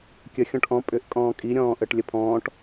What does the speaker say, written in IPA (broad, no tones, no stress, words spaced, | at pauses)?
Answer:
kʲə xʲɔ̃ʈʔɔ̃ pʼʏʔ kʼɔ̃ːkʼi ɾʲɔ̃ːʔəʈ lʲəpʰɔ̃ːʈ